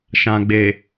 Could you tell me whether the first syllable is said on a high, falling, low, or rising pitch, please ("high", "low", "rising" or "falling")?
low